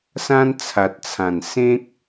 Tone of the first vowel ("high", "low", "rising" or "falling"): high